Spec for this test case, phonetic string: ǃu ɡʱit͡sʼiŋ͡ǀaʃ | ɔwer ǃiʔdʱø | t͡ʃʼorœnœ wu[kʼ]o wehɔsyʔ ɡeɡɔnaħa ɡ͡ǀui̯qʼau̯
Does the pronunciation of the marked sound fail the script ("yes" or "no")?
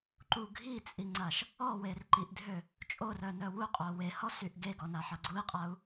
yes